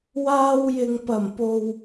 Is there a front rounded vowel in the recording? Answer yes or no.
no